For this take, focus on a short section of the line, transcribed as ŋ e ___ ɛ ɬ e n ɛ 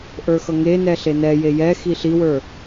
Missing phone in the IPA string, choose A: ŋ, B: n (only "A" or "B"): B